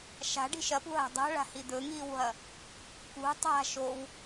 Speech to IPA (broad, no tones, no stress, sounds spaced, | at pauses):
ʃ a̤ ɖ i̤ ʃ ɐ p ṳ ɦ a̤ dˤ a̤ ɭ a̤ h i d̪ ɵ ŋ iː w ɦ ɐ | k ṳ tˤ a̤ ʃ o w